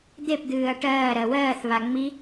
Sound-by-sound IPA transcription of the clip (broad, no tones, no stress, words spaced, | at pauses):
d̪epd̪ɨːɐ̯ ʈɜː ɾɜwɜːθβa ŋ͡mi